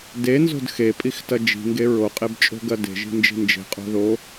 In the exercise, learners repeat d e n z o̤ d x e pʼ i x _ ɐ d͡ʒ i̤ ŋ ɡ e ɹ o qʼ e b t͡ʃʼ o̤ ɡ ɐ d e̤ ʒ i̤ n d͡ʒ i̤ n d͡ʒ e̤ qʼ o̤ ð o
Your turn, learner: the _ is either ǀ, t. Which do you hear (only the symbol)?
t